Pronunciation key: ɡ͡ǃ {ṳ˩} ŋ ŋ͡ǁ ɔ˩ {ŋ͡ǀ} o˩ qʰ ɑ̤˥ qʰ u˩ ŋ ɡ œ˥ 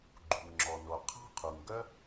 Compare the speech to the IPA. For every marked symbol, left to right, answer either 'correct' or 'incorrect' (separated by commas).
correct, incorrect